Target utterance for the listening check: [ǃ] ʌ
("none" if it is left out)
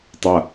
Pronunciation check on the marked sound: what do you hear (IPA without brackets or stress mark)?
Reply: tˤ